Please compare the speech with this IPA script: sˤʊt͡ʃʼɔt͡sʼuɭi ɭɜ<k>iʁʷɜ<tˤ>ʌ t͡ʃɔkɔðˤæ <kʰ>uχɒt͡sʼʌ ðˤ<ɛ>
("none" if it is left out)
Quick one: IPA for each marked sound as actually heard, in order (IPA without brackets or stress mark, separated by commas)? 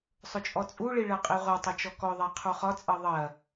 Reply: qʼ, tˤ, qʰ, ɜ